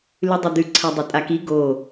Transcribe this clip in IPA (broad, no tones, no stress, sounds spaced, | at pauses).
l ʉ dˤ ɐ d̪ ʉ ǀʰ a dˤ e tʼ a k i ɡ o